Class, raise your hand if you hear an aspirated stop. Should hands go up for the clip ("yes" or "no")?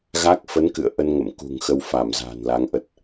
no